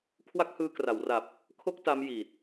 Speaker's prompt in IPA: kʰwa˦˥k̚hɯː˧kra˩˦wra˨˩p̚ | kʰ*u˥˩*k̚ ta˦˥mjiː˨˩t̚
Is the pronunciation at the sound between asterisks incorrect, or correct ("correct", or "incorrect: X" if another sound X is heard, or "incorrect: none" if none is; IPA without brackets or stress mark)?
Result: incorrect: o˥˩